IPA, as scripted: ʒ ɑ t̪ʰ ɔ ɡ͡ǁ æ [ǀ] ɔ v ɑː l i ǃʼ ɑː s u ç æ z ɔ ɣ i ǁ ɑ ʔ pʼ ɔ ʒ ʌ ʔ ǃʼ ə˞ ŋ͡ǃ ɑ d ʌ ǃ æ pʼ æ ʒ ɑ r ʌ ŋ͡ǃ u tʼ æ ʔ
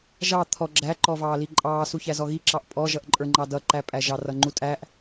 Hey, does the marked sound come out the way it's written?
no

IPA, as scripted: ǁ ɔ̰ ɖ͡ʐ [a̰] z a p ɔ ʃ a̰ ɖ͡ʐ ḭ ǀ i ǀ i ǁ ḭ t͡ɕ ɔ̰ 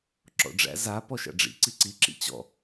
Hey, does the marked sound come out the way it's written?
no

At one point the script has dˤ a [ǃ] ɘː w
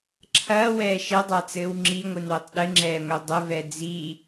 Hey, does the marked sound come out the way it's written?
no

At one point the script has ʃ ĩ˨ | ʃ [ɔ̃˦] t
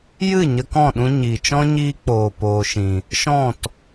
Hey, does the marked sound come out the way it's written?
no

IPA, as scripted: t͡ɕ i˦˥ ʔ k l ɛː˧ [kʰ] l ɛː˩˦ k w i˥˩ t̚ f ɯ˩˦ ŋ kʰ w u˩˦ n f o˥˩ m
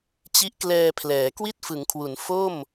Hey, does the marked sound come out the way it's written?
no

